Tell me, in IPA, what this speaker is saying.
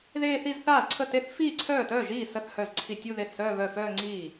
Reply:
ð eː˥˧ θ i˥˧ z θ aː˥˩ z ǀʰ ə˥˩ t e˥˧ θ f iː˥˩ ǀʰ œː˥˩ t œː˥˩ ʒ iː˥˩ s ə˥˧ θ h œ˥˩ z ǀʰ i˥˩ tʲ u˥˧ ð e˥˩ θ s œː˥˧ β œ˥˩ f œː˥˧ ŋ͡ǀ iː˥˩

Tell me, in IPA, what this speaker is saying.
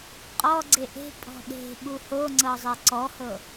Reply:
qʼ ɔ ɡ͡ǀ e ʔ e̤ pʼ ɔ̤ ɗ e̤ ɓ u h o ŋ͡ǀ ɤ zˤ e ǀ ɔ h ɤ

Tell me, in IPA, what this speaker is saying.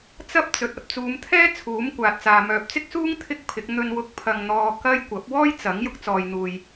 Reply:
t͡s ɐ˥ p̚ t͡s ɵ˨ t̚ ɐ˨ p̚ t͡s uː˨˧ m t̪ʰ ɛː˥ t͡sʰ uː˨˥ m kʷ aː˨ t̚ t͡s aː˨ m œː˨ p̚ t͡s ɪ˥ k̚ s uː˥ ŋ t̪ʰ ɪ˥ k̚ pʰ ɪ˨˥ k̚ n̪ ɵ˧ n w ʊ˧ k̚ pʰ ɐ˧ ŋ n̪ ɔː˧ k ɐ˥ j kʷ ɐ˨˥ p̚ w ɔː˥ j t͡s ɐ˨˥ ŋ j ʊ˧ k̚ t͡s ɔː˨ j n̪ uː˨ j

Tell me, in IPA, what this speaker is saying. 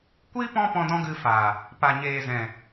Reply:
kʷ iː˦ p ɔ̃˦ p ɔ̃˧ d ɔ̃˦ ɡ ɨ˧ f a˨ | p a˨ ɲ eː˨ z ɛ̃˨

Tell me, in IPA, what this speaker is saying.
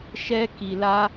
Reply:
ʃ ɛ˦ k i˧ l a˦

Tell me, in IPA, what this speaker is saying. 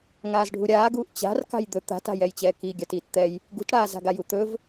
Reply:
ŋ aː z ɖʱ u ɾʲ aː ɡ uː ʔ t͡ɕ a̤ r k a̤ j d̪ ɵ t̪ a̤ t a̤ j ɛ j t͡ɕ ɛː k i ɡʲ a t iː t t̪ ɛ j | ɡ ṳ t ɽ aː z a̤ ɡ a j u t̪ ɵ v

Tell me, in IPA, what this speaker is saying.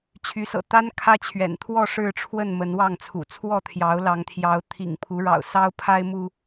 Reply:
t͡ɕʰ y˨˦ s ɤ̰˨˩ t̪ a˦ n kʰ ä˦ t͡ɕʰ ɥ ɛ̰˨˩ n t̪ʰ w ɔ˥˨ ʂ ɻ̩˥˨ ʈ͡ʂʰ w ə˥˨ n m ə˨˦ n w ɑ˥˨ ŋ t͡sʰ ṵ˨˩ t͡sʰ w ɔ˥˨ t̪ʰ j ɑ˨˦ ʊ̯ l ɑ˨˦ ŋ t̪ʰ j ɑ˨˦ ʊ̯ t̪ʰ ḭ˨˩ ŋ pʰ u˨˦ ɻ ɑ̰˨˩ ʊ̯ s ɑ˦ ʊ̯ pʰ a˦ ɪ̯ m u˦

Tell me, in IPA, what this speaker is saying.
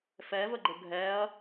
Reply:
f ɛ v ə ɡ͡ǃ ə ɡʱ ɛ ɐ̯

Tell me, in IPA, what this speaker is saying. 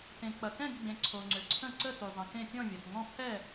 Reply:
t ẽ˨ k͡p ɐ˨ k ɛ̃˥˨ ɡ ɡ͡b ẽ˨ ǀʰ o˨ ŋ͡ǀ ʏ˨ ǀʰ ə̃˥˨ ǀ ə˥˨ t y˨ zˤ ə̃˨ k ẽ˥˨ pʲ ɔ̃˥˨ vʲ ɐ˨ t ŋ ɔ̃˥˨ pʰ ɛ˥˨

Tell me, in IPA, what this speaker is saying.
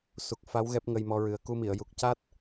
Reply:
s u˨˩ k̚ f a˧˥ w ɣ ɛ˦˥ p̚ ŋ ə˧ j m ɔ˧ ɹ ɨ˨˩ ə̯ k u˧ m i˨˩˨ ə̯ j u˨˩ k̚ c a˦˥ t̚

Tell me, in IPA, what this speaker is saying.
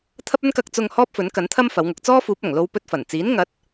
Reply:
t̪ʰ ɐ˥ p̚ ɵ˥ n k ɐ˧ k̚ t͡s ʊ˧ ŋ h ɔː˥ p̚ f ɵ˨˥ n k ɐ˨˥ n t̪ʰ ɐ˥ m f ɐ˨˥ w ŋ ʊ˨˥ k̚ t͡s ɔː˥ f uː˨˥ p̚ ɐ˨˩ ŋ l o˧ w p ɵ˧ t̚ f ɐ˨˩ n t͡s iː˨˥ n ŋ ɐ˨˥ t̚

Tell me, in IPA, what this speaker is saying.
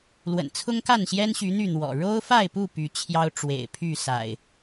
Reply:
l w ə̰˨˩ n t͡sʰ ʊ˦ ŋ k a˥˨ n ɕ j ɛ˦ n ɕ y˨˦ n̪ y˥˨ n̪ w ɔ̰˨˩ ɻ o˦ ʊ̯ f a˥˨ ɪ̯ p u˥˨ p y˨˦ t͡ɕʰ j ɑ˦ ʊ̯ ʈ͡ʂ w ḛ˨˩ ɪ̯ pʰ y˥˨ s a̰˨˩ ɪ̯

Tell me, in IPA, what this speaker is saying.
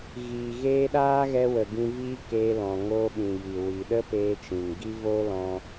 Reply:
ɣ iː˨ ɣ eː˧ ɗ aː˦ ɣ ɛ˧ w ə˨ ɡ ĩ˧ v iː˦ k eː˧ l ɔ̃˨ ŋ oː˧ ɓ ĩ˨ j i˨ w i˨ ɗ ə˦ p eː˧ t͡ʃ ĩ˨ ŋ ɡ i˦ v oː˦ l ɔ̃˧

